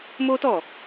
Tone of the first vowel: high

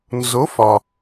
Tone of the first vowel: rising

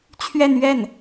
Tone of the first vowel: falling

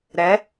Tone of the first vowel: rising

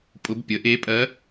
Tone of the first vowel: rising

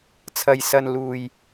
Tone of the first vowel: low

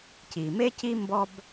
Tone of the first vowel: low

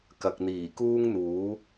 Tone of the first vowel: low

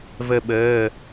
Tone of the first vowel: falling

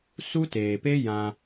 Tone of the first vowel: high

